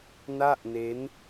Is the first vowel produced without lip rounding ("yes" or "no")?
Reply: yes